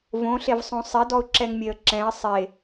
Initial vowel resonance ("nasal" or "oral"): nasal